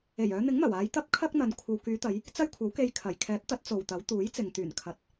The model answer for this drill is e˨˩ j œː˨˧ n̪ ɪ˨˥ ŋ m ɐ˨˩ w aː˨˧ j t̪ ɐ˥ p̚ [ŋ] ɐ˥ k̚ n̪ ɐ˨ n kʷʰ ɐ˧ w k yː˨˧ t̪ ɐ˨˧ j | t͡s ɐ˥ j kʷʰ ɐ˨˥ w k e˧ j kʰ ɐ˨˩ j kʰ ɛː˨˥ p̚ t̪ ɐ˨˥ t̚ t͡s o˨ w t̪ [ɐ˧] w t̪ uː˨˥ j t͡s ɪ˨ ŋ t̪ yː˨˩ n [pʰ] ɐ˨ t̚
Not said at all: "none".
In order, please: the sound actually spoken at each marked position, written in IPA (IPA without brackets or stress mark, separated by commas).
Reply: kʰ, ɐ˨˥, kʰ